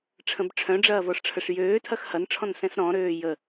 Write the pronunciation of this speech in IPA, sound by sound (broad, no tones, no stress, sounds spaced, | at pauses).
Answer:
ʈ͡ʂʰ ə̃ b ʈ͡ʂʰ œ̃ ɖ͡ʐ ɐː v ɔ ʂ ʈ͡ʂʰ ə ʂ j øː tʰ ɐ x h ɐ n ʈ͡ʂʰ ɔ̃ n s ɛ̃ s ɾ ɔ̃ ɾ øː j ə